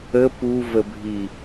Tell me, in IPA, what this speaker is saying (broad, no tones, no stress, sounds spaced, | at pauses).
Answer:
ə p u v ə bʱ i